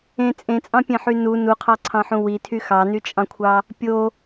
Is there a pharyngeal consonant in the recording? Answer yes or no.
yes